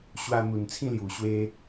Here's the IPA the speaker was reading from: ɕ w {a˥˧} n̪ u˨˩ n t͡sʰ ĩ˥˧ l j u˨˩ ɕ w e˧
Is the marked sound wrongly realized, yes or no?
yes